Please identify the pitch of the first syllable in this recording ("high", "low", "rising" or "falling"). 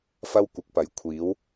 high